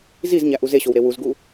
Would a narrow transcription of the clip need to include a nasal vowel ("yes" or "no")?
no